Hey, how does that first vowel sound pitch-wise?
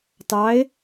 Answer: rising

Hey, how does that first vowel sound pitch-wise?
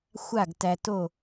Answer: falling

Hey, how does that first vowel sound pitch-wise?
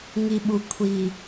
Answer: low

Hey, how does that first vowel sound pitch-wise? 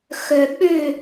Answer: low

